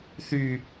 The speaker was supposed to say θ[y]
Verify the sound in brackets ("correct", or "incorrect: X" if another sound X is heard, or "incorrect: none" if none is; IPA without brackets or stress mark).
correct